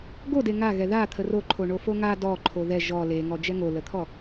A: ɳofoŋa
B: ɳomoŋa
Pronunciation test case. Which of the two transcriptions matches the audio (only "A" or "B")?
A